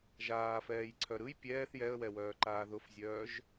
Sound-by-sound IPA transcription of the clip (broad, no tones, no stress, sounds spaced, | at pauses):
ʒ aː f ɛː j ǀʰ œ ɾ ɯ j pʲ ɛː θ j ɛ ə̯ w ɛ w œː ǃ aː ð ʊ f zʲ œː ʒ